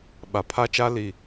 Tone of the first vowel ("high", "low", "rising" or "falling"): low